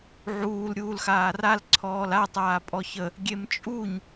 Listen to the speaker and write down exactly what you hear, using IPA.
ʕ uː l ɾʲ uː l x aː r a l ǀʰ ɔː l a tˤ aː pʼ ɔ ç ə | ɡʲ e m t͡ʃʼ u ɲ

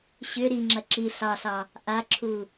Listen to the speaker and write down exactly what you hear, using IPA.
ɕ ʏ ɾ i ŋ͡ǁ ɐ ǁ i ɬ ɑ ɬ ɑ | ʔ a ǁʰ u

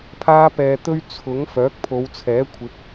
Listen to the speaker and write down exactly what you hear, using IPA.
pʰ aː˥ p ɛː˧ t̪ ɵ˥ ɥ t͡sʰ ʊ˨˥ ŋ f œː˨˥ k̚ pʰ o˨˧ w t͡sʰ ɛː˨˥ kʷʰ ɪ˨˥ k̚

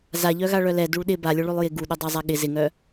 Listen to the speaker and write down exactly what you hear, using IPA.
z a ʎ œ ɣ a ɭ œ l ɛ d u ɭ ɗ ɪ b a lʲ ʊ ɭ ʉ lˠ j ɪ ɡ u ɗ ʊ dˤ a zˤ a ɠ ɪ z ɪ ŋ œ

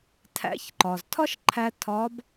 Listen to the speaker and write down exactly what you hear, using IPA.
tʰ æ̰˧˥ ç ǃ ɒ˩ z tʰ ɒ˥ ʃ ǃʰ æ˧ tʰ ɒː˧˥ b

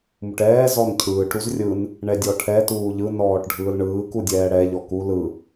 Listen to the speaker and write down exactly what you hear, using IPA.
m u ʈ ɛː z ɔ n cʰ ɯː ʈ ɾ u z rʲ ɯ n | ɳ ɛ dʲ ɔ ʈʰ ɛ t uː ʎ ɯ n ɔː ʈ ɖʱ ɯː l ɳ ɯː k u dʲ ɛː ɽ ɛ ʎ ɔ k u l ɯ

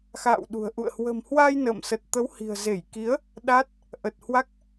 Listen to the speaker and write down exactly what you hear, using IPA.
x a̰ː˧˨ w ɗ ṳ˨˩ ə̯ ʔ ṵ˧˨ ə̯ h w ə̤˨˩ m h w a˧ j n ə̰ː˧˨ m s ə˨˩ t̚ t̪ ə˨˦ w h i̤˨˩ ə̯ z e˧˩ j k i˨˦ ə̯ | ɗ a˦˥ t̚ | ʔ ə˨˩ t̚ h w a˦˥ k̚

